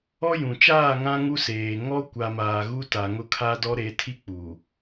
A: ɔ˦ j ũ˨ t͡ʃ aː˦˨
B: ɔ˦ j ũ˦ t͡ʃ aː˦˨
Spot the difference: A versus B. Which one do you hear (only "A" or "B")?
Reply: A